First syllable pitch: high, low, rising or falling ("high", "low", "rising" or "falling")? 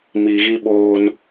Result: low